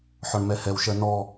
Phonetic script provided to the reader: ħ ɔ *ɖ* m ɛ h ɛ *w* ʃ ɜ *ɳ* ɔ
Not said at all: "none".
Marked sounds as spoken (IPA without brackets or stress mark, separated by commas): ɳ, w, n